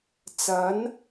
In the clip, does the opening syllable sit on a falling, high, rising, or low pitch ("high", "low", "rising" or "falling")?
rising